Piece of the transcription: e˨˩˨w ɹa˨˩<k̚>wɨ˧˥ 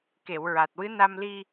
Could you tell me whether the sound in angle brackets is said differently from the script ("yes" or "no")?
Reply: yes